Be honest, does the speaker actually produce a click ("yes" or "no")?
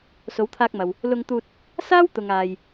no